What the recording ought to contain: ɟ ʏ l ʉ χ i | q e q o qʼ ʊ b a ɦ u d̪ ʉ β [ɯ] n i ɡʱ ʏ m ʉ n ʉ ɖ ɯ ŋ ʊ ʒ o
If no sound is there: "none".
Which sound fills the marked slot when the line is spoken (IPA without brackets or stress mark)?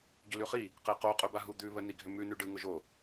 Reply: ə